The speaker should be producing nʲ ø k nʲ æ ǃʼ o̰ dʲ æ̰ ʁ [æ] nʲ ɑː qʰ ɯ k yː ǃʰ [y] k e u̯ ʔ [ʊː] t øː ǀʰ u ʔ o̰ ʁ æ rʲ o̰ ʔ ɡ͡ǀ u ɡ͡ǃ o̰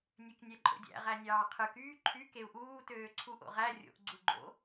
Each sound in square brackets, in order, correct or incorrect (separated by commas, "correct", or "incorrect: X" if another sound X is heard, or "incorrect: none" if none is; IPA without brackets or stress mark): correct, correct, incorrect: uː